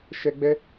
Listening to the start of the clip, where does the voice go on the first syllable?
high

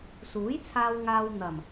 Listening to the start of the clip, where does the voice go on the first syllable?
rising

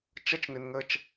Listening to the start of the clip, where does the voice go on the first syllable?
high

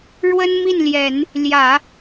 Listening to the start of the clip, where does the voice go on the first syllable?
high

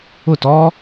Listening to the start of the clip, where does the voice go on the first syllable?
falling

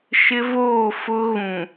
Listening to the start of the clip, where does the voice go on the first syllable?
high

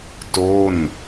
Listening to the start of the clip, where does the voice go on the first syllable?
falling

